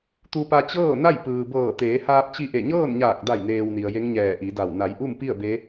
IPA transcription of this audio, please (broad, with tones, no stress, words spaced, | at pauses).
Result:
t̪u˧pa˧ t͡ɕɤː˥˨na˥˨j pɯː˩bɤː˧˩ t̪eː˩˧haː˧p̚t͡ɕi˧ʔe˧˩ ɲɤː˥˨nɲaː˧˩k̚da˧˩jneː˩w ni˩ə̯je˧˥ŋɲɛː˧˩ ʔi˩˧da˧˩w na˩˧jʔu˥˨mpi˥˨ə̯ be˧˥